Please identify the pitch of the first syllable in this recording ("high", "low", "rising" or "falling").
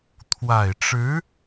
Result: low